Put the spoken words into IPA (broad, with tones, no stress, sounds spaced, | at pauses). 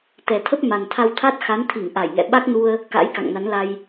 t̪ ɛ˨˩ t̪ʰ ə˦˥ p̚ m a˨˩ n t̪ʰ a˧ w t̪ʰ a˦˥ t̚ x a˨˦ n t̪ʰ i˧˩ ŋ ʔ a˧˩ j ŋ ɛ̰˧˨ ɓ a˦˥ k̚ n u˧ ə̯ | k a̰˧˥ j k a̰˧˨ ŋ n a˨˦ n l a˧ j